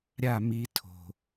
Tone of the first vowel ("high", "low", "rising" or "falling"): falling